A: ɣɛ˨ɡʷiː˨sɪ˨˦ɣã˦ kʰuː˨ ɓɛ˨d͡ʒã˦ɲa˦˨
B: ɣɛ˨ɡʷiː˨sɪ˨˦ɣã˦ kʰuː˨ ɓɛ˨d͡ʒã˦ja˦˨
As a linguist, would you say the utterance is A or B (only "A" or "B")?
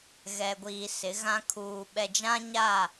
A